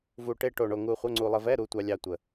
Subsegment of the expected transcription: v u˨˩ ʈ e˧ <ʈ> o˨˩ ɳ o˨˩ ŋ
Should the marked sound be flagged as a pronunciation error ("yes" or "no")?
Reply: no